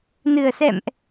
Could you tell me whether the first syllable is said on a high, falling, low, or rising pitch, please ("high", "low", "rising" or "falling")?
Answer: low